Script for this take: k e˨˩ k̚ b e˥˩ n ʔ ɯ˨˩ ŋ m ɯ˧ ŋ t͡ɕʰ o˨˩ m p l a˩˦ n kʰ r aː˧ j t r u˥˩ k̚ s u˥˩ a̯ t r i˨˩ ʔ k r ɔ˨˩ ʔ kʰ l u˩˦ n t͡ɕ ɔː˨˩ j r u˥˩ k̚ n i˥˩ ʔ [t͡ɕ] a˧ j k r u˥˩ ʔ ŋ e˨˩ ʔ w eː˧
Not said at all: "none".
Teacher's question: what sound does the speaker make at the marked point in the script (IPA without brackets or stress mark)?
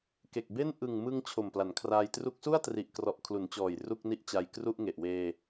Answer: t͡ɕ